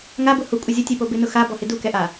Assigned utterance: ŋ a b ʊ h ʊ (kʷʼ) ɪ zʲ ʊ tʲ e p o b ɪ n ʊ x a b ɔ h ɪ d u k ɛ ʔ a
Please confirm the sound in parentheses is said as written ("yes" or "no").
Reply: yes